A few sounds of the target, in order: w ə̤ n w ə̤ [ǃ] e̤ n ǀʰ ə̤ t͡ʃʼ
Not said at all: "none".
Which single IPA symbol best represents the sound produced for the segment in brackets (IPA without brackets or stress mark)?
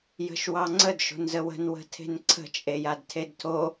tʰ